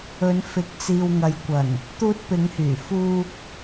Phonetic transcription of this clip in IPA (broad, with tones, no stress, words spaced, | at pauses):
ɵ˨˧nfɪ˨˥k̚ t͡siː˨wŋɐ˨jkʷɐ˨˩n | t̪uː˧t̚pɪ˨˧ŋhyː˨˩ fuː˧k̚